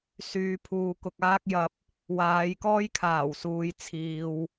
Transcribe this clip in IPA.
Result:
syː˨˧ pʰuː˨kʊ˨k̚aː˥k̚jɐ˧p̚ | waː˨˧jkɔː˥jkʰaː˨˩w suː˨jt͡sʰiː˨w

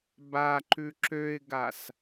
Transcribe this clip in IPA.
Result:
baǃʉ ǁøɪ̯ɡas

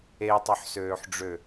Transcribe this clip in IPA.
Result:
etˤœħsøːħɖ͡ʐø

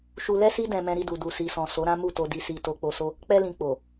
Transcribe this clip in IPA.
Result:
ʃu˧lɛ˦si˦ dɛ̃˧ mɛ̃˧ɾi˧du˨ du˨si˨sɔ̃˨ so˨˦ɾã˦mu˦˨ to˧di˧si˧ to˧k͡po˧so˦ | k͡pɛ˧lĩ˨ k͡po˨

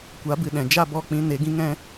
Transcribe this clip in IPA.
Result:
kʷa˨˦bɨ˨ɗɛ̃˨ d͡ʒa˦˨bɔ˦˨k͡pĩ˧ ne˨˦ɡĩ˦ŋɛ̃˦

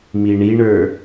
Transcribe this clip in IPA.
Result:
miɳiɳə˞

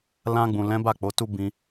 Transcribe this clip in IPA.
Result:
lã˧ɡ͡bũ˨lɛ̃˨˦ ba˦˨ k͡po˨˦tu˦ bĩ˦

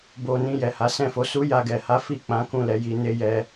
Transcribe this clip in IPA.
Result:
bo˧nĩ˧ jɛ˨ha˨˦sɛ̃˦˨fo˨˦ su˦ja˧ɡɛ˨ha˨˦ fi˦˨k͡pã˨˦ kũ˦˨lɛ˧ji˧ ne˦jɛ˦

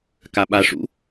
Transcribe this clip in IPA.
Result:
kaɓa ʂṵ

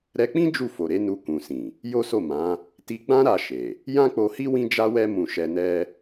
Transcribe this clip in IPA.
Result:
ɾɛ˧k͡pĩ˦ d͡ʒu˦˨ fo˨ɾe˨˦ nu˧kũ˨sĩ˨ | jo˦so˦˨mã˨˦ | ti˧ɡ͡bã˦ɾa˧ ʃe˨ | jã˦k͡po˧hi˦ wĩ˦d͡ʒa˦wɛ˦ mũ˧ ʃɛ˧nɛ˦

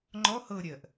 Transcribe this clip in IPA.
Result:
ŋ͡ǃɔ hɤ ɾʲɜʔ

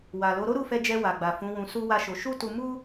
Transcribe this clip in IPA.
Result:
wa˨lo˨˦ ɾo˦ɾu˦˨fɛ˧ d͡ʒɛ˧wa˨ɡ͡ba˨ fũ˨˦wũ˧su˦ wa˦ʃo˧ ʃu˦tu˧mu˦

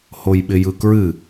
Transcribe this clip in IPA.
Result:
hojɓɪjɯkɹɨ

